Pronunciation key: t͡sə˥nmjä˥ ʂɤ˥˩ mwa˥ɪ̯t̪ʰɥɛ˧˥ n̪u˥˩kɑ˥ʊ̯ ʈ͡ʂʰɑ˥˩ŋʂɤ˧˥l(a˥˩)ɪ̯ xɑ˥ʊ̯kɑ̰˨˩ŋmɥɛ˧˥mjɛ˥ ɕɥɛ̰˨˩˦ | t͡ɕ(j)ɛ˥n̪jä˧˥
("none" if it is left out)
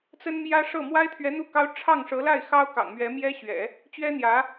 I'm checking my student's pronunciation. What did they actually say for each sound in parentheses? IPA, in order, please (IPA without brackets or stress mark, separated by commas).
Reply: a˥˩, ɥ